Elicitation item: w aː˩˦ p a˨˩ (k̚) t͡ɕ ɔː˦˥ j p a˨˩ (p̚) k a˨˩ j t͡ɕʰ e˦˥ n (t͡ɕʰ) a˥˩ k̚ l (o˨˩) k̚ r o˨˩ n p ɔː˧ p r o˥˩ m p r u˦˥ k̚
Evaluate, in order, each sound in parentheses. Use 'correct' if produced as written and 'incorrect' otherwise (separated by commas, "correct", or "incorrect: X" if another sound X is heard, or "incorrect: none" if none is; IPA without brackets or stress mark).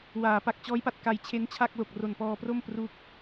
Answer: correct, incorrect: t̚, correct, correct